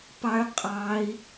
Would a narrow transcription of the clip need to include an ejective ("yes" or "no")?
yes